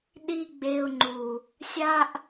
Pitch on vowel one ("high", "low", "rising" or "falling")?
high